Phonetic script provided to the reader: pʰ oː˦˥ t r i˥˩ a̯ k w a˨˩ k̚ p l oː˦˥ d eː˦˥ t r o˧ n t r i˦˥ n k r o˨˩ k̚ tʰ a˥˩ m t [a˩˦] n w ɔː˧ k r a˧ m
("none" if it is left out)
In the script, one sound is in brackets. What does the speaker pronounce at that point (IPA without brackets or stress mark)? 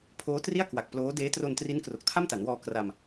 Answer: a˩˦